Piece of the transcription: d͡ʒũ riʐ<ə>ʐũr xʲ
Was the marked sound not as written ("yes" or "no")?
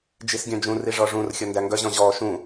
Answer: yes